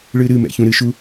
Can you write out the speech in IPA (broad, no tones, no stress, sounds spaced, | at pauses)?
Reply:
ɭ ɨ ɾ ɨ m ɛ̰ ç ũ ɾ ɨ ʃ u